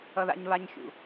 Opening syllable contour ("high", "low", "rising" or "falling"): high